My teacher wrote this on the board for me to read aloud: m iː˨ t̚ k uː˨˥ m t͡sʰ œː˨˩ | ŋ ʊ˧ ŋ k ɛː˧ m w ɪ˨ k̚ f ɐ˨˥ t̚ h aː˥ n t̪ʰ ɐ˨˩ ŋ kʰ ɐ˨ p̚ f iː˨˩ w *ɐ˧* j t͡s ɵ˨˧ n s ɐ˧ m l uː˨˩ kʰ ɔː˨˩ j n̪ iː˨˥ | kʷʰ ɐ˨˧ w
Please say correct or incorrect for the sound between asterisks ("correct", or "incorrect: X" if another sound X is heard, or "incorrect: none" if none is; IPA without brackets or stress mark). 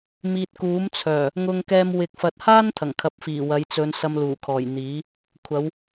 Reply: incorrect: ɐ˨˧